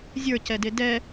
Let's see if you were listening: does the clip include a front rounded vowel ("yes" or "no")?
no